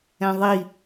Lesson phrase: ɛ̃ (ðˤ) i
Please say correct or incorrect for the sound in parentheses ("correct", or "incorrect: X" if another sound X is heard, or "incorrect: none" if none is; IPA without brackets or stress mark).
correct